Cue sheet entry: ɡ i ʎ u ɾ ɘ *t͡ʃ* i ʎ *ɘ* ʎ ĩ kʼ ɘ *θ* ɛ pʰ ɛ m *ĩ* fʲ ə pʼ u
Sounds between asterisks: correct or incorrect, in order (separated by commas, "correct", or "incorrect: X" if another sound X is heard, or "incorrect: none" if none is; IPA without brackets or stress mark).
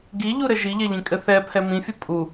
incorrect: ʒ, incorrect: ɛ, correct, correct